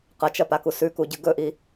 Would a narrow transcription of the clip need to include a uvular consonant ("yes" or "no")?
yes